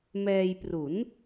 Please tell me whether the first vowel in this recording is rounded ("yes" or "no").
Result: no